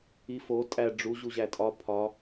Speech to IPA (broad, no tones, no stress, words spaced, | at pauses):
ifo tʼæ ɖ͡ʐu ʑuʑætʼɒ pʰɒ